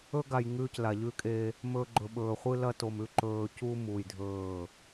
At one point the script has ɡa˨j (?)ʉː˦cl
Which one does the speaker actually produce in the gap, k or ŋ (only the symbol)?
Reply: ŋ